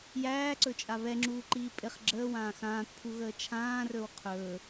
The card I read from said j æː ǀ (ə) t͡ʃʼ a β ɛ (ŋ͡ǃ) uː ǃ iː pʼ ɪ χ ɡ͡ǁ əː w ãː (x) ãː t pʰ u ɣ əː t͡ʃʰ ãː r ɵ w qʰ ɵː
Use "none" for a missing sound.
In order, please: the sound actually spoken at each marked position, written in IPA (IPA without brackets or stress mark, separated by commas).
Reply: ɵ, ŋ͡ǁ, x